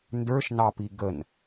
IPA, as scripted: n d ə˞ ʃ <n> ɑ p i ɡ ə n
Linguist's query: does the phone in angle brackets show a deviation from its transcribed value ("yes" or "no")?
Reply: no